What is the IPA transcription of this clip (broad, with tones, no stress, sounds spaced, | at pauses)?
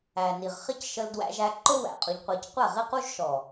æ˨ n i˨ ʁ χ ɪ˦ c ʃ ə˧ l d w æ̰˧ ʒ æ˧ ǃ ʊ˦ w æ̰˨ qʼ ʊ˧ ʎ qʷ ɜ˧ c qʷ ɛ˦˨ ʁ i˦ q u˦ ʒ ʃ ɔ˨